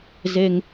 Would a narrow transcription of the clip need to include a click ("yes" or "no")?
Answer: no